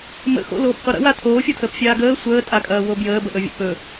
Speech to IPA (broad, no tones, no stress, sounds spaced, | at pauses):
m ə̰ x o̰ l oː p qʷ ɐ ɾ ə̰ w a tʰ oː fʲ o tʰ əː p fʲ aː ɡ əː sʷ əː tʼ a kʼ ɐː w o b j əː b ə ʔ ɵ vʲ ə̰ p ɵ